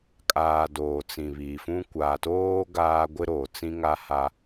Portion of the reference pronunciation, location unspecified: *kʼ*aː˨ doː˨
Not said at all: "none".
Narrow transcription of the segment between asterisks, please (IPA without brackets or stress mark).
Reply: kʼ